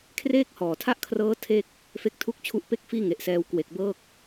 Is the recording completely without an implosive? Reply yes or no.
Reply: yes